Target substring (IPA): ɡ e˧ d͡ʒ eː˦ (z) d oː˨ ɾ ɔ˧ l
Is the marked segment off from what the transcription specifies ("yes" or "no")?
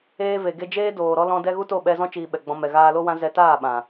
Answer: yes